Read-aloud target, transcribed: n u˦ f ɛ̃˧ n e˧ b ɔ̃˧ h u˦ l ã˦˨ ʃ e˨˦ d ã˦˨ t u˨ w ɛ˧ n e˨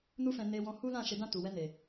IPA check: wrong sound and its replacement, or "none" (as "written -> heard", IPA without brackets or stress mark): b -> w